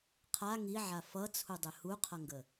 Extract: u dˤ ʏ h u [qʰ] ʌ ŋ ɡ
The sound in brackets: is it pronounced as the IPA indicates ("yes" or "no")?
yes